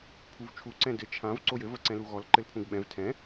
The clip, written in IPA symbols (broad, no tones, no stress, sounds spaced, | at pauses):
pʰ u v t͡ʃʰ u ǀ ɛ̃ d ɘ t͡ʃʰ ã v ǀ o j ɘ v ɐ ǀ ɛ̃ l u ɣ ɔ l ǃ ɘ l pʰ ũ ɡ ɓ ɛ̃ v tʰ ɛ̃